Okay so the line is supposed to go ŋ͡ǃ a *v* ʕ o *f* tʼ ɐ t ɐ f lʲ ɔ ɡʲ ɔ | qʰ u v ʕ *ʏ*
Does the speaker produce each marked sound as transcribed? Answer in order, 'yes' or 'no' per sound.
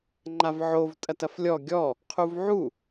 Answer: yes, no, no

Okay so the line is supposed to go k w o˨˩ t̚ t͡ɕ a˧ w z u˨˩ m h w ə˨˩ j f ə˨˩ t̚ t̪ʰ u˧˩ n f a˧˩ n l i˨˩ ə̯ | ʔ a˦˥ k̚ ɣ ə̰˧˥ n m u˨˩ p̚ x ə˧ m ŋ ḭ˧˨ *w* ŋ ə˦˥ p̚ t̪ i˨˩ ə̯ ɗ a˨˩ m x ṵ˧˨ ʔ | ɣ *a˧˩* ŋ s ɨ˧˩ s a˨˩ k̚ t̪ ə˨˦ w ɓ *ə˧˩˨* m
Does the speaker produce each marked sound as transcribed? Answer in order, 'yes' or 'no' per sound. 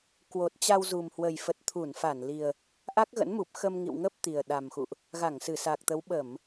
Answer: yes, yes, yes

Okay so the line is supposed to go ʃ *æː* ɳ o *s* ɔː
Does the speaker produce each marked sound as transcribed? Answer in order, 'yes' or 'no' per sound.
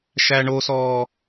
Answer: no, yes

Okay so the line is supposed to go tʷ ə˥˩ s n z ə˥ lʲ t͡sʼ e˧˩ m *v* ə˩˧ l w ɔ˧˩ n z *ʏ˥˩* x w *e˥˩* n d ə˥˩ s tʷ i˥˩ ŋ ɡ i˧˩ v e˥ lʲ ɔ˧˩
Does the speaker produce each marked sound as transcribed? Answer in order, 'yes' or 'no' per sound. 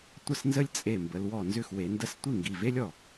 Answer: no, yes, no

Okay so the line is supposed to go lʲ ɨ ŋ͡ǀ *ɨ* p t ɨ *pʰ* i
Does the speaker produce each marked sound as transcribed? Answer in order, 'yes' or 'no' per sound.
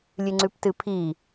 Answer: no, yes

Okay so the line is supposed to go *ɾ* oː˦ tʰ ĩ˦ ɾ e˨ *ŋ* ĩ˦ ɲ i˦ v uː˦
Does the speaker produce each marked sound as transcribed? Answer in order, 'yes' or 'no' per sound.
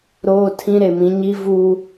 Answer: yes, no

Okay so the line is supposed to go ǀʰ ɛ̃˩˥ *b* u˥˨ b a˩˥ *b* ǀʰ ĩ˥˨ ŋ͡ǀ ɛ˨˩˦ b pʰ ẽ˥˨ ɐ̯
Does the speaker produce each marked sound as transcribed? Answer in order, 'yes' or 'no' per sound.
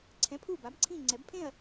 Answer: no, yes

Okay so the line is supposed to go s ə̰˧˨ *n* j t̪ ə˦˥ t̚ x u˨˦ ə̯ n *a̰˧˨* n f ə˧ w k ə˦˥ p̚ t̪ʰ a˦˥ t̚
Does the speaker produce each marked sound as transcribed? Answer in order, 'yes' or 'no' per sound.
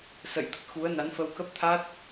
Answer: no, no

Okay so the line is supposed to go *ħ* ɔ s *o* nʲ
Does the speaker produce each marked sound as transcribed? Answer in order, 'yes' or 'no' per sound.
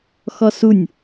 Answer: no, no

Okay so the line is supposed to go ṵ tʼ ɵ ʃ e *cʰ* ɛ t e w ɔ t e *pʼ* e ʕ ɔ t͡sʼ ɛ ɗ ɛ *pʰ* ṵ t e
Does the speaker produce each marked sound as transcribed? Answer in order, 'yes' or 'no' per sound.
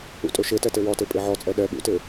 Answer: no, yes, no

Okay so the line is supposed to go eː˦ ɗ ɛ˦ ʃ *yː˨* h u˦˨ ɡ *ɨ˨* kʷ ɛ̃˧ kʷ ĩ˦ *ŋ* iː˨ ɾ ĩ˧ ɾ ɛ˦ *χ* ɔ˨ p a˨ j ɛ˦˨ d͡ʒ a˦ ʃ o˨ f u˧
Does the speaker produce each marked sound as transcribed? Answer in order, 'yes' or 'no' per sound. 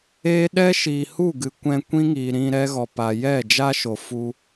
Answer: no, yes, yes, no

